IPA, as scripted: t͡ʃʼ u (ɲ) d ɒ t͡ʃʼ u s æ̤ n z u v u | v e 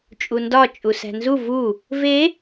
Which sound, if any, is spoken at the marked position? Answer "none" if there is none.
n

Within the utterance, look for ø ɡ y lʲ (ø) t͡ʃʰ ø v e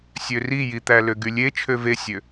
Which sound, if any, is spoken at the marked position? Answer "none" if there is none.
e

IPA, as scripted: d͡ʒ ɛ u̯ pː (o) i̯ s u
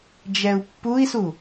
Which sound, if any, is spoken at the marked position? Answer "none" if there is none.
u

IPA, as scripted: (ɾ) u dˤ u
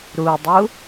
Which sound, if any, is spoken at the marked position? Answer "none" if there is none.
ɾ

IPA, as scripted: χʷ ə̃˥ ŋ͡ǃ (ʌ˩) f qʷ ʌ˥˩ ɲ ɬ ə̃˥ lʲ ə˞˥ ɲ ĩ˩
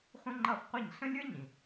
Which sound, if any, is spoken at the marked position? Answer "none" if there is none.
ʌ˥˩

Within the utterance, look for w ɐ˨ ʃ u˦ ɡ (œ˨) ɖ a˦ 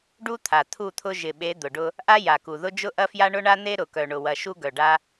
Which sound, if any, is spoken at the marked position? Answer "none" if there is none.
œ˨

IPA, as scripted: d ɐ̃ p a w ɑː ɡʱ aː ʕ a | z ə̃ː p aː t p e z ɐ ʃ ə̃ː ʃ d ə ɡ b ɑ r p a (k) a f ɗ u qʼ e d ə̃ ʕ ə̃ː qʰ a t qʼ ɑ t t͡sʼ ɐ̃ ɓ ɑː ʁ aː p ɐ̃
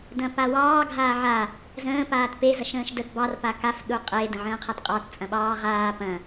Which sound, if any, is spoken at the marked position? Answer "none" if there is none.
k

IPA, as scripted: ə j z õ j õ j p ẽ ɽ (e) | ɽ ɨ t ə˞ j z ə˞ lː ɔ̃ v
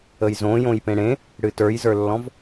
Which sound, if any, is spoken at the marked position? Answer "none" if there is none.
ẽ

